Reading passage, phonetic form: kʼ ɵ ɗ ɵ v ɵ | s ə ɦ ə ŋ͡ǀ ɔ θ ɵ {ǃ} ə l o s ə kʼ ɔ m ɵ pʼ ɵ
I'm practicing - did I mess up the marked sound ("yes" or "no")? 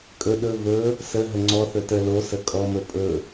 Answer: yes